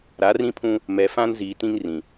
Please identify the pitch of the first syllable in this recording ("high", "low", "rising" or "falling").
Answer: rising